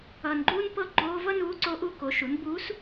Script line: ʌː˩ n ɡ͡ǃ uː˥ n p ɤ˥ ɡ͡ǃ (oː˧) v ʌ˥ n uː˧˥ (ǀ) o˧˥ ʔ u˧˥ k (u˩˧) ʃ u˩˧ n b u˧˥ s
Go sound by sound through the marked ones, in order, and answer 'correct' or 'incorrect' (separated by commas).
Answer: correct, correct, incorrect